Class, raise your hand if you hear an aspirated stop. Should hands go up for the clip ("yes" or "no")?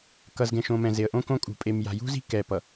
no